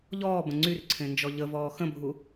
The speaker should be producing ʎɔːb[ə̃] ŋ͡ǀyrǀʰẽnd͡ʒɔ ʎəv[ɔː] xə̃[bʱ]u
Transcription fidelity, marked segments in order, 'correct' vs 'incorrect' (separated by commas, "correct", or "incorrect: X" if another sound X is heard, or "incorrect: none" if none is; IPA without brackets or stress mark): correct, correct, correct